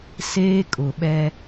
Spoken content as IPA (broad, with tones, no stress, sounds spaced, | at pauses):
s eː˦ kʼ ʊ˨ ɓ ɛ˦